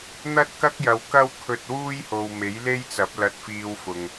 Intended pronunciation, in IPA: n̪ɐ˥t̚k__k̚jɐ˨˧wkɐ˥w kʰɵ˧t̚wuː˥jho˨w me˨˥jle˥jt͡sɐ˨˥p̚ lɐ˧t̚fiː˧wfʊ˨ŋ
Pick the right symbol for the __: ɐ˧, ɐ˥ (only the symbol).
ɐ˥